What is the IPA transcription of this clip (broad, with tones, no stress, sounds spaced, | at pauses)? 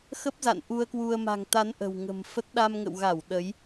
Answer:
x ə˦˥ p̚ z a̰˧˨ n ʔ u˧ ə̯ k w u˧ ə̯ m a̤˨˩ ŋ t̪ a˨˦ n ʔ ə̤˨˩ w ŋ ə̤˨˩ m f ə˦˥ t̚ ɗ a˧ m ŋ ə̰˧˨ w ɣ a˧˩ w ɗ ə˨˦ j